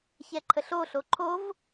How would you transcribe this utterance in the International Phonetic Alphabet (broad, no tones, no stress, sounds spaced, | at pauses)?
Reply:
ç ɛ ǃʰ ə ɬ o ɬ o ǃʰ o v